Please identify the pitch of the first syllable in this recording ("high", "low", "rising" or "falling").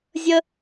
high